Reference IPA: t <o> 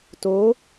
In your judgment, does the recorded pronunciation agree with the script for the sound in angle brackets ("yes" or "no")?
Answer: yes